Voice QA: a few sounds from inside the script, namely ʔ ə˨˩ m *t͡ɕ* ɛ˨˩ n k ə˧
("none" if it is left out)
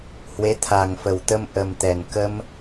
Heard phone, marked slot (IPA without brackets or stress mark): t̪